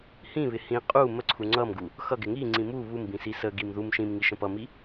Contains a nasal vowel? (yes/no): yes